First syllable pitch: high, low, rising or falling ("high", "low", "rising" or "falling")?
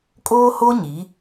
high